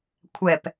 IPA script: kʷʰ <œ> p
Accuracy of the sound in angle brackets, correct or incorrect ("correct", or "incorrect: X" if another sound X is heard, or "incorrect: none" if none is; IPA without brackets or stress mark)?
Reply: incorrect: ɛ